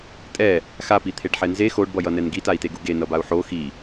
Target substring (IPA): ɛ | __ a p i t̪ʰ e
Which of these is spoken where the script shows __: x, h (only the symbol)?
x